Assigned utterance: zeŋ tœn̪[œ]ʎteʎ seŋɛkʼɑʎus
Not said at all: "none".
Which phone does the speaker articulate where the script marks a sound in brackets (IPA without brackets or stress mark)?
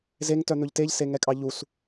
ɵ